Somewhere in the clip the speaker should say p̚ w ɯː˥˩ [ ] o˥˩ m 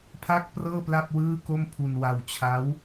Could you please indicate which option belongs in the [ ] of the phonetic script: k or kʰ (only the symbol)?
k